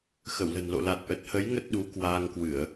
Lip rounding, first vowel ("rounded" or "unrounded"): unrounded